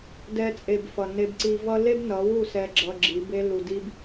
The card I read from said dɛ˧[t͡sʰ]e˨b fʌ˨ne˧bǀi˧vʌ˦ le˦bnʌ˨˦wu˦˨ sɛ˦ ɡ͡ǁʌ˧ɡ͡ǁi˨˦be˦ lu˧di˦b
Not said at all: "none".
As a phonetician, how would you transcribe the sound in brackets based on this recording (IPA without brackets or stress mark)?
t͡sʼ